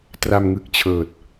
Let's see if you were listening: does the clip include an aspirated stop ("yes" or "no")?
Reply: yes